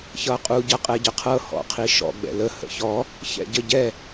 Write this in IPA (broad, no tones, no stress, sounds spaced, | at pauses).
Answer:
ç ʌ qʼ u ɟ ʌ qʼ ɛ ɟ ə qʰ ɤ h ɔ̰ qʰ i ʃ ɔ̰ ɡ͡b ɛ̰ l ə h ə̰ ç ɔ | ç ɛ̰ ɟ ə ɟ ɛ